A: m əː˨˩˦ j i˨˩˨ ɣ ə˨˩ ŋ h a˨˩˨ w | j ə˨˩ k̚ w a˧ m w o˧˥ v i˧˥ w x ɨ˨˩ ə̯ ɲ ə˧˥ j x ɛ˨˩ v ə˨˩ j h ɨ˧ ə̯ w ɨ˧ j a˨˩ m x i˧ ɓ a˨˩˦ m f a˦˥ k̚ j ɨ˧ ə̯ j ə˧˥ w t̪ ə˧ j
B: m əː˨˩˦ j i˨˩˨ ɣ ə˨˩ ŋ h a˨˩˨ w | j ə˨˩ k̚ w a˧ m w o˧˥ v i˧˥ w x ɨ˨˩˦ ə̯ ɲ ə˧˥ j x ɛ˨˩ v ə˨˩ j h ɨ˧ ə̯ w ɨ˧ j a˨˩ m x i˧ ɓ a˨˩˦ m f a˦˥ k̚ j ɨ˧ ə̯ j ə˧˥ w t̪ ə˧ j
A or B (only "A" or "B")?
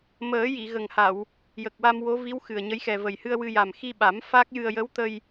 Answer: A